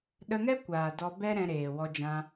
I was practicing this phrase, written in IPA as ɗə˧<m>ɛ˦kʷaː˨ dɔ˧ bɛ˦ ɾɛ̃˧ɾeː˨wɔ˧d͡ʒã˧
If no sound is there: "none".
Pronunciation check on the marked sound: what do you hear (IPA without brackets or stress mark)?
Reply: ŋ